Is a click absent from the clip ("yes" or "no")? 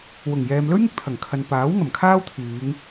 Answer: yes